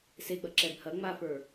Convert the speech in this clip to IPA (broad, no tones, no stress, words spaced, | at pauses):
seɡ͡bɐ ǁɛbhɐ ŋ͡mafə˞